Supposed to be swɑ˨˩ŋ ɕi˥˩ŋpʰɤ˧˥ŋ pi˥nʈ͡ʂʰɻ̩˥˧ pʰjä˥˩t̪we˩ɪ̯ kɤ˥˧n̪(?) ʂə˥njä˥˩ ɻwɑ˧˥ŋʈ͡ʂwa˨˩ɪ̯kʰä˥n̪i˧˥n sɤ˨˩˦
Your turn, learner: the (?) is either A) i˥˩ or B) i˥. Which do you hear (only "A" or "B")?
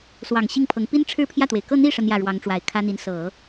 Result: A